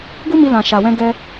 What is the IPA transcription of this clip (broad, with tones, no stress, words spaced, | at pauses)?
ɡu˦mi˧ lã˨ʃa˨wɛ̃˧ ɡɛ˦